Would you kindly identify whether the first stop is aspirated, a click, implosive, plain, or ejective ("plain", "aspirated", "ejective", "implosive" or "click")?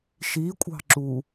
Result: ejective